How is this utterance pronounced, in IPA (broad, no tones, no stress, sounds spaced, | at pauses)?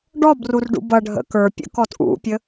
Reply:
ɖ ɔ b r u r ɖ ṵ b ʌ ɖʱ ə̰ k ə˞ pʲ ə̰ k ɔ t ʔ ṵ pʲ ə